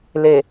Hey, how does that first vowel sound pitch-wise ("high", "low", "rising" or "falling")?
low